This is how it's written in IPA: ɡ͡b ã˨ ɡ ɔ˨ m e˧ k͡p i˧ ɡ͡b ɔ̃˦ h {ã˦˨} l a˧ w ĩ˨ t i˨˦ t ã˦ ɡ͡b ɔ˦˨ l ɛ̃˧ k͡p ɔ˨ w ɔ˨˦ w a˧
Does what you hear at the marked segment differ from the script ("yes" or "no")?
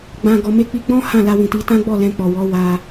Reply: no